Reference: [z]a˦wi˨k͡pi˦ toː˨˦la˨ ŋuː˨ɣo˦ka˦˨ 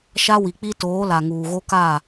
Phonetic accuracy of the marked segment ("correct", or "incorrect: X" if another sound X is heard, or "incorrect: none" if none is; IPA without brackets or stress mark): incorrect: ʃ